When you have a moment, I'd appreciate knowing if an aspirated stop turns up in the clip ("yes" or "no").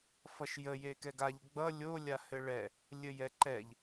no